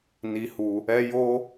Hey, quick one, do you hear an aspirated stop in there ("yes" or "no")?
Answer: no